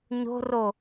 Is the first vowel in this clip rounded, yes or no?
yes